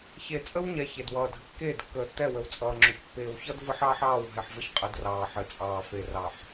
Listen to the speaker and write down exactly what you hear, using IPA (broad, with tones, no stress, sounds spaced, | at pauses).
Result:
ç e˨ t͡sʼ ə˦ w ɲ ɛ˨ ç e˨ d w ʌː˨ dʱ ə˨ kː eː˦˨ d kː əː˨ tː ɛ˦˨ w ə˨ w t͡sʼ ʌː˨ ŋ͡ǁ ʊ˨ ç pː eː˨ w ç ʌ˦ d v ə˦ ħ ɑː˦ ħ ɑː˦˨ w ɦ ɛ˨ ħ v ə˦ ç qʼ ə˨˦ d r ɑː˨ ħ ɘ˨ t͡sʼ ɑː˨ f e˨ r ɑ˨ ħ